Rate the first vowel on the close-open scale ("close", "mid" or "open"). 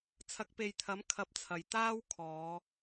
open